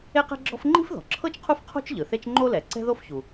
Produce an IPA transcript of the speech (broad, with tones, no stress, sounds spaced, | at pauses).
e˥ q ɛ̤˥ ɡ͡ǁ ɔ̤˥ f ŋ͡ǃ i̤˥ f ð ɔ̤˩ ǁʰ ɤ˥ t͡ʃ qʰ u˥ f qʰ o̤˥ t͡ʃ ʎ ɯ˩ θ e˥ t͡ʃ ŋ͡ǃ o˥ l ɛ˩ ǀ ɛ̤˥ ð o˥ f ç u˩